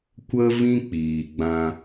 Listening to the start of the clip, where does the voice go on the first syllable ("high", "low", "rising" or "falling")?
high